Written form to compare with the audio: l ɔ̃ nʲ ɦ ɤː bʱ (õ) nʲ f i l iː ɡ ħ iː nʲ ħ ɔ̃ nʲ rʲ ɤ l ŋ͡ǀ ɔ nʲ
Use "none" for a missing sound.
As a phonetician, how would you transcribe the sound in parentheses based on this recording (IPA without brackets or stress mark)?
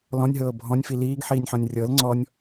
ɔ̃